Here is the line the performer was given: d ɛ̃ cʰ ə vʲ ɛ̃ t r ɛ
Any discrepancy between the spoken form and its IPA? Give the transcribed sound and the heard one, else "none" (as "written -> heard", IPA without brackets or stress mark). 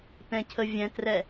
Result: d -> t